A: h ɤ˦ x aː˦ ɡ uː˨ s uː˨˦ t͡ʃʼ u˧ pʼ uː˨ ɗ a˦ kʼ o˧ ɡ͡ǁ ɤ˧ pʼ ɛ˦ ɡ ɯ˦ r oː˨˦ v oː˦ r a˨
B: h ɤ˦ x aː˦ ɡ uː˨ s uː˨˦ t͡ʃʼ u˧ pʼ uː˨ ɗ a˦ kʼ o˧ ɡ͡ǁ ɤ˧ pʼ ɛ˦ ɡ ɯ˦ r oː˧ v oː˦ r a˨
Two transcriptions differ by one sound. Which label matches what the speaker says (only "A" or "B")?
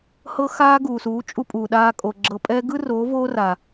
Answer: A